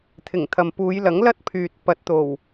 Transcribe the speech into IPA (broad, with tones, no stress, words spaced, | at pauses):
t̪ʰɪ˨˩ŋt̪ʰɐ˨mpuː˨˧jlɐ˨˥ŋ lɐ˥t̚pʰyː˨t̚pɐ˨˥t̚ t̪o˨˩w